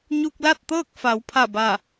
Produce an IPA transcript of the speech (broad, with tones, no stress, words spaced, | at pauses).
ɲu˧k̚la˥˨t̚t̪ɤː˥˨k̚ fa˩˧wpʰa˧˩ba˧˩